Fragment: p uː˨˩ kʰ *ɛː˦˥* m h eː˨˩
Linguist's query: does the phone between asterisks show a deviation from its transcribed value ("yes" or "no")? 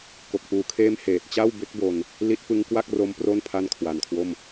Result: yes